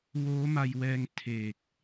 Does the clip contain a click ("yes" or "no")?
no